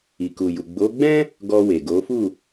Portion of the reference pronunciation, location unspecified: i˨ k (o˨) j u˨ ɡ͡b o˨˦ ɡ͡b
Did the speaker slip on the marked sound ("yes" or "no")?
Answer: yes